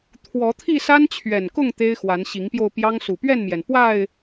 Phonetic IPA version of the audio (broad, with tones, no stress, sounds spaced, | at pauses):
t̪ʰ w ɔ˨˦ t̪ʰ i˥˨ s a˦ n t͡ɕʰ ɥ ɛ˨˩ n k ʊ˥˨ ŋ t̪ e˦ ɪ̯ x w a˨˦ n ɕ i˨˦ ŋ p j o˧ ʊ̯ p j ɑ˦ ŋ s u˨˩ p ɥ ɛ˥˨ n m j ɛ˩ n p w a˥˨ ɪ̯